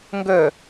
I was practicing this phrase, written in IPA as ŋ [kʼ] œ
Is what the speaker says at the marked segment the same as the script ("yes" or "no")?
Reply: no